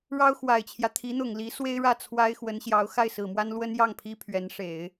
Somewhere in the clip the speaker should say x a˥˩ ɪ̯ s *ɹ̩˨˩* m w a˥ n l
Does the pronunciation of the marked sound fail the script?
no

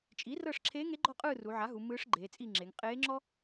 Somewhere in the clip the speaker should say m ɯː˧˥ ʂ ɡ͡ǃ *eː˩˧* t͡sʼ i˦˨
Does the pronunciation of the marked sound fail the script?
no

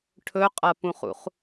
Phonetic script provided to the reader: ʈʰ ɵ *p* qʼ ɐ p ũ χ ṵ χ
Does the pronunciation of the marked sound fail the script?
yes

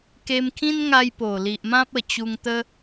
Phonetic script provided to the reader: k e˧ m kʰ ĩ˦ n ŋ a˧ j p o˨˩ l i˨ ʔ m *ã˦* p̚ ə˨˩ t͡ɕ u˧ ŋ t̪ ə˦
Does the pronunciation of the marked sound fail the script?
no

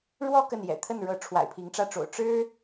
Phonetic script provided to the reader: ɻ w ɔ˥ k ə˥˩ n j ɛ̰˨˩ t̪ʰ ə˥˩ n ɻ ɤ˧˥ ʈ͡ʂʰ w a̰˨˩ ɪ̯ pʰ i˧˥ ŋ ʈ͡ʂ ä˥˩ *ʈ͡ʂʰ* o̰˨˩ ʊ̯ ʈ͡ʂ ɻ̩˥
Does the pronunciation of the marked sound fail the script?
yes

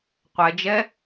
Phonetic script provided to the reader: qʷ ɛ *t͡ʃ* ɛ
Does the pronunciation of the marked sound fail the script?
yes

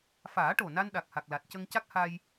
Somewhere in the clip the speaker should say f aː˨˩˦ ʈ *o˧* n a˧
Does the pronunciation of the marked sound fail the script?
yes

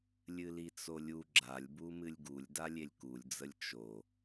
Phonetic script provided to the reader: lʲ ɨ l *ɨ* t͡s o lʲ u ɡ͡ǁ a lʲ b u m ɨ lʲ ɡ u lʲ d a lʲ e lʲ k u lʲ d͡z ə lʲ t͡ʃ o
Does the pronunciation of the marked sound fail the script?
yes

